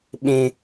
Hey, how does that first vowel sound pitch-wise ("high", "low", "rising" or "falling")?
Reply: high